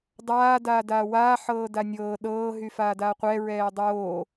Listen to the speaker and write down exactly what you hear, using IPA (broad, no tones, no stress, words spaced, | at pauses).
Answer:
dˤaː daːdaːwaː ħɤːdanʲɤː ɗɤː ɦyfaːdaqʷɛ ɹɛːdˤoː